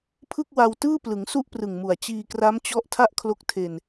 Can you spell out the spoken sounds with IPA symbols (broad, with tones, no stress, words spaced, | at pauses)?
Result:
pʰɯ˥˩k̚wa˧w tɯː˥˩plɯ˩˦ŋ su˥˩ʔprɯ˨˩ŋmu˨˩a̯ t͡ɕiː˧kra˦˥mt͡ɕɔ˦˥ʔ tʰa˥˩ʔkʰlo˦˥k̚tʰe˧n